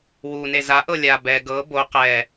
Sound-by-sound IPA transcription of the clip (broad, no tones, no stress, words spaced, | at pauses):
wune zaʔɤ lʲa bɛ ɡɤ bo qɛ